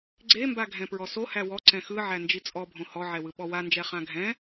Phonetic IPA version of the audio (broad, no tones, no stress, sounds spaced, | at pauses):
ɡ͡ǀ e m b a ɡʱ ɛ̃ p ɹ ɔ s o h æ w ɔ ǀ ɛ̃ x ɯ ʕ æ n d͡ʒ i t͡sʼ ɔ bʱ õ h ɔ ʕ ɛ w ɯ ɓ ɔ w a n d͡ʒ ɛ χ ã ɡʱ ɛ̃